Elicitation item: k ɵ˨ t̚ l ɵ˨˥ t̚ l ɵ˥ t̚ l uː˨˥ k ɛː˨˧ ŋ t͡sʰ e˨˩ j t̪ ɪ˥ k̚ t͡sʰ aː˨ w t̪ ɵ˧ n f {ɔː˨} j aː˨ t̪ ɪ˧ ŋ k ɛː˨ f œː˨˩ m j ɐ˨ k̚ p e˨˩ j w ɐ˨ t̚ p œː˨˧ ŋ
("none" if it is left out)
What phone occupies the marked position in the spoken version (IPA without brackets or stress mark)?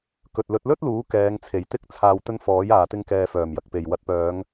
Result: ɔː˨˥